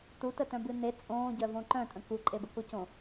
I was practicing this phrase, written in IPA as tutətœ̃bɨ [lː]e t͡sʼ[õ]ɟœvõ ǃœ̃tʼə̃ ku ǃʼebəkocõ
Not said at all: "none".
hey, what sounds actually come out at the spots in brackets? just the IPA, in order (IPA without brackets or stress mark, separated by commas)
n, õː